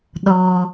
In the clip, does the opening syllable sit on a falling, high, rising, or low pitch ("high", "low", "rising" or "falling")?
high